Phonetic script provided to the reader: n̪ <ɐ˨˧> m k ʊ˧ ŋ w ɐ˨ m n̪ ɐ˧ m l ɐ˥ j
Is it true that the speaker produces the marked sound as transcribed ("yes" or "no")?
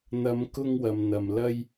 yes